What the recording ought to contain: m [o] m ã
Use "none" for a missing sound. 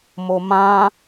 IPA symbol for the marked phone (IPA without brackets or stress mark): o